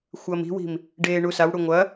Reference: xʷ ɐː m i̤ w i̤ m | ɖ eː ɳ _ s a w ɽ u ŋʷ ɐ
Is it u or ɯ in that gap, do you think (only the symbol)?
u